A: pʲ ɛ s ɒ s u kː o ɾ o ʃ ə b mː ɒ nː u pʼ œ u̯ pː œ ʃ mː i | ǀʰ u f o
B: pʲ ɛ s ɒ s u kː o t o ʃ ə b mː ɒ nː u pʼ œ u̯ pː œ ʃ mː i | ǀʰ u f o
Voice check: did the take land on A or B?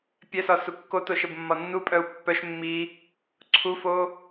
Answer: B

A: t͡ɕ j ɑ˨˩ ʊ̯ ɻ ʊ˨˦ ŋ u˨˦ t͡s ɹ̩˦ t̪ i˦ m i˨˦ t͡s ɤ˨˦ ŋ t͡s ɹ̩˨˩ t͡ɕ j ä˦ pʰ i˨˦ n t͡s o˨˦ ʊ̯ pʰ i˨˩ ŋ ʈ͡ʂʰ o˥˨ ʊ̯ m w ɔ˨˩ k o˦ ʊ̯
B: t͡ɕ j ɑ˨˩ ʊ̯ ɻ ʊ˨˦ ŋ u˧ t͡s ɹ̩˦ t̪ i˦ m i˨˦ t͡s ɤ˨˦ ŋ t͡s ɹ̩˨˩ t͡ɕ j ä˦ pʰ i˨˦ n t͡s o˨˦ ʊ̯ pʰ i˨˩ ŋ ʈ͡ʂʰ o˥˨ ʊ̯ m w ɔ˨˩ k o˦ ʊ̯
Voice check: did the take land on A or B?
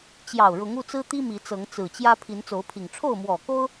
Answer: B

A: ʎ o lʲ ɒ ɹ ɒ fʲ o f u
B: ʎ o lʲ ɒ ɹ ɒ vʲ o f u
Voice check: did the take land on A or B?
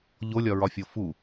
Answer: A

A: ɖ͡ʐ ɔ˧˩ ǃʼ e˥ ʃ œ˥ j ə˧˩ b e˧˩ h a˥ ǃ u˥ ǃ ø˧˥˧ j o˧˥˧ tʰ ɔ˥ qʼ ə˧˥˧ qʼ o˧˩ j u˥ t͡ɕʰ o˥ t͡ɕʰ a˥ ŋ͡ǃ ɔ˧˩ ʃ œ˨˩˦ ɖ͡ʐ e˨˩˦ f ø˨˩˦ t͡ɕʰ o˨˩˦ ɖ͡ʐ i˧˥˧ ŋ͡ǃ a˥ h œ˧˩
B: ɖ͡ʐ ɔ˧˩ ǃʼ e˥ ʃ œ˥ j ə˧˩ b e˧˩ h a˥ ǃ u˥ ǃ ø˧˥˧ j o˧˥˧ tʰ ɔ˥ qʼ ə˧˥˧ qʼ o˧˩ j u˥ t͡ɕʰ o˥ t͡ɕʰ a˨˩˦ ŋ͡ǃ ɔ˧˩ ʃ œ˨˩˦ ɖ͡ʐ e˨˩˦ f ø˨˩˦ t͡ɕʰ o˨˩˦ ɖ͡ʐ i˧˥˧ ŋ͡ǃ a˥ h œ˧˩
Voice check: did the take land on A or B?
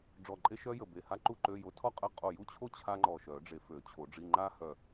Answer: A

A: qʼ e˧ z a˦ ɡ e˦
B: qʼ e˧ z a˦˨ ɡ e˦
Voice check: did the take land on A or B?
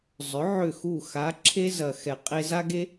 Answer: A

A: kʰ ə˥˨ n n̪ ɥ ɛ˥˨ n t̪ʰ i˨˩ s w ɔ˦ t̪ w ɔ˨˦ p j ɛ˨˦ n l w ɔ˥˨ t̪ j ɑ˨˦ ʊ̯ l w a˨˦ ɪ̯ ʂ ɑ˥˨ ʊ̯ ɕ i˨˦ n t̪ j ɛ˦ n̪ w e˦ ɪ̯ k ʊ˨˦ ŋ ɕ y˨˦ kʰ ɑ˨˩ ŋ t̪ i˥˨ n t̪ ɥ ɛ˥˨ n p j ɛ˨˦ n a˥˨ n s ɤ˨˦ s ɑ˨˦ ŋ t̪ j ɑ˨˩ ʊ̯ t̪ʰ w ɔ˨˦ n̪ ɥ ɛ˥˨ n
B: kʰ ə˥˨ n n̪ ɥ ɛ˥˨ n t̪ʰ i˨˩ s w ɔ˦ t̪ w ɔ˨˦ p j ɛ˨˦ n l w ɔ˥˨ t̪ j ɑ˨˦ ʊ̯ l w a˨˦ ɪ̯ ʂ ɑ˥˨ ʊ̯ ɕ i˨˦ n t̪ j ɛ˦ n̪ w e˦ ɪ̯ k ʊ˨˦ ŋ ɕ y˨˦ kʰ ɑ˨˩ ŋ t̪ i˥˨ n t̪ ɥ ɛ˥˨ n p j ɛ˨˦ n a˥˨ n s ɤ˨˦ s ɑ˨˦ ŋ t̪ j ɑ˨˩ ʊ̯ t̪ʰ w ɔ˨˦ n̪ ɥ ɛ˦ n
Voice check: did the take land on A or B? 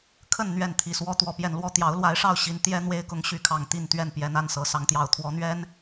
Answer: B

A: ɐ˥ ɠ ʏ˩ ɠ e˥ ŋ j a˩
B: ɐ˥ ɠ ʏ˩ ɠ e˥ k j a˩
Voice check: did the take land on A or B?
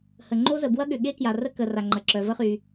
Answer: B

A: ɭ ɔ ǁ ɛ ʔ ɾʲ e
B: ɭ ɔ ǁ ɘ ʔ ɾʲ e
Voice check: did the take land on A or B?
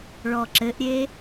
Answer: B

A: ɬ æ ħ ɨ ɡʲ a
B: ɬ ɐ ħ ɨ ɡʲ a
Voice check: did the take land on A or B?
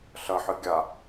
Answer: B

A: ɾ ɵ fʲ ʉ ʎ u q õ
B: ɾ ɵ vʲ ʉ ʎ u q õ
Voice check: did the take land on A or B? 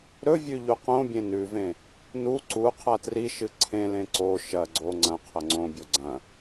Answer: B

